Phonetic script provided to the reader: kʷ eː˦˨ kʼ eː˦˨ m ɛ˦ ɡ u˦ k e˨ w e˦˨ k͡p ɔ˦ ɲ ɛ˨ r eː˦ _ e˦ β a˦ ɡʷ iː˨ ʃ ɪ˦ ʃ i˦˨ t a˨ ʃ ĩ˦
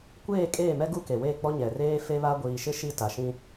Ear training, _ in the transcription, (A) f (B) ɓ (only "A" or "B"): A